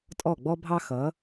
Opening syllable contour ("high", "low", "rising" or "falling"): falling